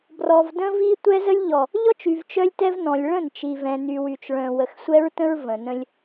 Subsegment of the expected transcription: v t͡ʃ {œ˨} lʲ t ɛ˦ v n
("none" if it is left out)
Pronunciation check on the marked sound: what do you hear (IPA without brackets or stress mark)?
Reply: œ˦